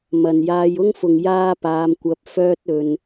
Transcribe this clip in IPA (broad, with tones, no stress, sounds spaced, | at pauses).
m ɐ˨ n j aː˧ j ʊ˥ ŋ f ʊ˨ ŋ j aː˥ p aː˧ m kʷ ɐ˧ p̚ f œː˥ t̚ ɵ˧ n